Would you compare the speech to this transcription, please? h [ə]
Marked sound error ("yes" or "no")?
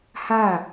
yes